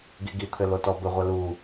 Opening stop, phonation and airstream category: plain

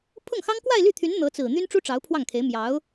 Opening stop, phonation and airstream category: aspirated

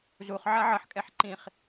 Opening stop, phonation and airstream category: ejective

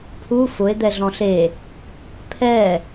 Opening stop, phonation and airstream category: aspirated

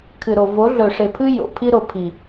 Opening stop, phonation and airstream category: aspirated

